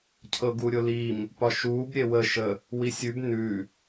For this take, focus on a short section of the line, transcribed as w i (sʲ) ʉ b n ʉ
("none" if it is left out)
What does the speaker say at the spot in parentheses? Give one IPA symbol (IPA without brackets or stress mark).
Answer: sʲ